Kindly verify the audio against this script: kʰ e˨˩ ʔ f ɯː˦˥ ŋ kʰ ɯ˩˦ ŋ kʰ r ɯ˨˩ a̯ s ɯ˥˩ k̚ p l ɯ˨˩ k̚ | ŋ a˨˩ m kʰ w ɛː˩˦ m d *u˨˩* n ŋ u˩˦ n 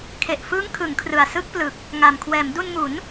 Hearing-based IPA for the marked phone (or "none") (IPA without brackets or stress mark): u˧